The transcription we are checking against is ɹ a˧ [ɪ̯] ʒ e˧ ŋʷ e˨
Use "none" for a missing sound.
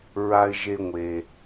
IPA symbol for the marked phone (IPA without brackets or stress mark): ɪ̯